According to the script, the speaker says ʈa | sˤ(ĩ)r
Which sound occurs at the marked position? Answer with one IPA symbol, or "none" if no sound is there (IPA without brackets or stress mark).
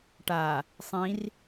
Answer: ĩ